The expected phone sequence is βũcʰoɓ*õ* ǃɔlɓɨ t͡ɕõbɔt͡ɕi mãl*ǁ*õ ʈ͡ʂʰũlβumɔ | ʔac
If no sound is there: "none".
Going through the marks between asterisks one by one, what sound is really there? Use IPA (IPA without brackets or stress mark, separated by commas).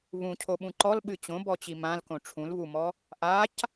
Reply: ũ, k